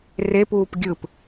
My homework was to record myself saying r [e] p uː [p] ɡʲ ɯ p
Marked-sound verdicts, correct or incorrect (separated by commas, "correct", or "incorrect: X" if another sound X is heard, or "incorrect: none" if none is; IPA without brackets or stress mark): correct, correct